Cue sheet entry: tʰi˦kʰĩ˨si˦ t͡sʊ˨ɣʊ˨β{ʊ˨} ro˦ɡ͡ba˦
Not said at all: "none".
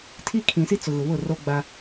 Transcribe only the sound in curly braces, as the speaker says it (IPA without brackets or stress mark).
ʊ˦˨